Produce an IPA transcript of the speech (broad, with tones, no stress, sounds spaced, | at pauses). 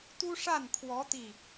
t̪ u˥ ʂ a˥˩ n kʰ w ɔ˧˥ t̪ i˥˩